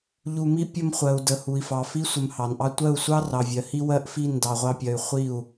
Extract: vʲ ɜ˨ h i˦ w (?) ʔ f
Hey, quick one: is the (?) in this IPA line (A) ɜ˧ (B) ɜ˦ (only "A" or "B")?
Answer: B